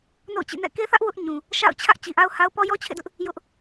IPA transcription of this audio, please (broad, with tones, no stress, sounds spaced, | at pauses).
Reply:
n o̰˦˨ ʊ̯ t͡ɕ ḭ˦˨ n ɛ̰˦˨ k e˦ θ ä˦ ʔ w ʊ˦ ʔ ɲ ũ˨ | ʃ a̰˦˨ ʊ̯ t͡ɕʰ ä˦ ʔ t͡ɕ i˨ ʔ a˦ ʊ̯ h a˦ ʊ̯ p ɔ˦ j ɔ˦ t͡ɕʰ ḛ˦˨ d ʊ˦ ʔ | j ʊ˦ ʔ